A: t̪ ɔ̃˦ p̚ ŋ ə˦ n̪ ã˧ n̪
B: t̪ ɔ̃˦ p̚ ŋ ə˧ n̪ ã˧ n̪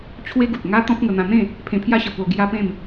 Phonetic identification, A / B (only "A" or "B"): B